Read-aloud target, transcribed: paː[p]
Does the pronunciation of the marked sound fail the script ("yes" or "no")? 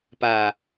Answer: yes